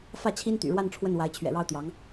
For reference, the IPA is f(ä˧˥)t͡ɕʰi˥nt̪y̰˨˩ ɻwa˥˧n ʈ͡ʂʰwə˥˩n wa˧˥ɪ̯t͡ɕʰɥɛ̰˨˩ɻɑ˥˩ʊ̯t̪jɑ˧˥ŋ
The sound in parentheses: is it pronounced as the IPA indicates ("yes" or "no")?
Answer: no